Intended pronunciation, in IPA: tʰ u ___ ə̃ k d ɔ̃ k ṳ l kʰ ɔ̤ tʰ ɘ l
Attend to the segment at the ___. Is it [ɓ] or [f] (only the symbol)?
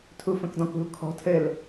f